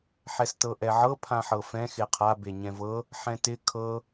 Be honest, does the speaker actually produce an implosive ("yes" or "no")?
no